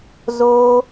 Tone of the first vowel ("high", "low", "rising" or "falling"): high